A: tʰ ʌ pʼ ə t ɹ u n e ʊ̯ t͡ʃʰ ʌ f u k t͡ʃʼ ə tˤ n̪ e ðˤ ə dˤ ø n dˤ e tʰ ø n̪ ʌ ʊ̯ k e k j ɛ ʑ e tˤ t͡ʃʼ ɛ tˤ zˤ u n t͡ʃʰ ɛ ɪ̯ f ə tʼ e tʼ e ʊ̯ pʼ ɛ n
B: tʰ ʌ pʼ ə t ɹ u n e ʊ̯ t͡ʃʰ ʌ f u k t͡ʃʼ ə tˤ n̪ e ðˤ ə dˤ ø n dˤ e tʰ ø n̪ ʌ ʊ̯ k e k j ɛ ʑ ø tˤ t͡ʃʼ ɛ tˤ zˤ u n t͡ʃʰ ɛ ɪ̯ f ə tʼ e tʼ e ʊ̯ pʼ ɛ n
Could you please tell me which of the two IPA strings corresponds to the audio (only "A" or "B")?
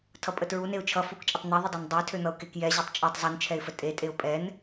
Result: A